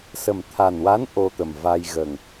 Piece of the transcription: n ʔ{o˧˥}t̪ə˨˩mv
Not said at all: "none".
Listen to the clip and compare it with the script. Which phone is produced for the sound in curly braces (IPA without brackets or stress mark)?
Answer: o˧